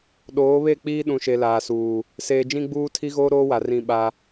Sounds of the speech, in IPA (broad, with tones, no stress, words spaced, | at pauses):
ɗoː˨˦ βe˦˨ k͡piː˦ ɗũ˨ʃe˨ laː˨suː˨ | seː˨d͡ʒĩ˦ɡ͡buː˦ tʰi˦ɣoː˦ ɾoː˦wa˨ rĩ˦˨ɓa˦